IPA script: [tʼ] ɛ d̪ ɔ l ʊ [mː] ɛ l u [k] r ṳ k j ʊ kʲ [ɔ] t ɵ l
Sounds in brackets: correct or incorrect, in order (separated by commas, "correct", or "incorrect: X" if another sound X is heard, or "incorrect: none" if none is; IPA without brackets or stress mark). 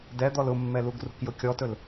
incorrect: d, correct, incorrect: ɡ, correct